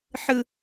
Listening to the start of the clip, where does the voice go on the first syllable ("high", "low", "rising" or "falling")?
high